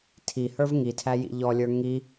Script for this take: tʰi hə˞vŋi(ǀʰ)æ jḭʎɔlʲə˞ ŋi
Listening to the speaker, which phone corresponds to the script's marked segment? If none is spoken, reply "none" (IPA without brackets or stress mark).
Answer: tʰ